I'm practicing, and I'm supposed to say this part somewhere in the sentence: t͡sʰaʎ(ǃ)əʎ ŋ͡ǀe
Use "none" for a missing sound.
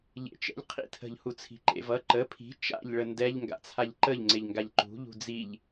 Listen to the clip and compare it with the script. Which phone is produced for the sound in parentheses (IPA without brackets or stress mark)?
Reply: ǃ